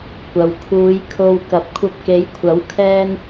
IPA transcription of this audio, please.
kʷ ɐ˨ w kʰ uː˨˧ j kʰ o˧ w k ɐ˨˥ p̚ kʷʰ ɐ˧ p̚ k e˨˧ j kʷʰ ɐ˨˥ w kʰ ɛː˥ n

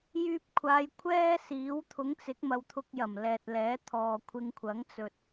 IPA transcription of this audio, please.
j yː˧ p̚ kʷʰ aː˨˧ j kʷʰ ɛː˥ s iː˨˥ w t̪ʰ ʊ˨˥ ŋ t͡s ɪ˨˥ k̚ m ɐ˨ w t̪ʰ ʊ˧ k̚ j ɐ˨˩ m l ɛː˨ t̚ l ɛː˨˥ t̪ʰ ɔː˨ kʷʰ ɪ˧ ŋ kʷʰ ɐ˨˥ ŋ t͡s ɵ˧ t̚

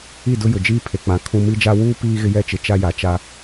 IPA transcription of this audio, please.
i˦˨ d ʊ˦ j ʊ˨ d͡ʒ iː˦ pʰ e˨ k͡p ã˨ kʰ ũ˦ m i˦ d͡ʒ a˦ w uː˦ p iː˦ ɣ ɪ˦ j ɛ˦ t͡ʃ ɪ˨ t͡ʃ a˦ j a˨ t͡ʃ a˦

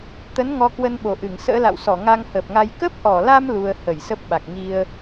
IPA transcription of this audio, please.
t̪ ə˨˦ n ŋ ɔ˧ k w ə˧ n ɓ o˨˩ ʔ ɨ˧˩ ŋ s ə̰ː˧˥ l a̰˧˨ w s ɔ˧˩ ŋ a˧ ŋ h əː˨˩ p̚ ŋ a˧ j k ə˦˥ p̚ ʔ ɔ˧˩ l a˧ m l u˧ ə̯ h ə˧˩ j s ə˦˥ p̚ ɓ a˨˩ k̚ ŋ i˧ ə̯

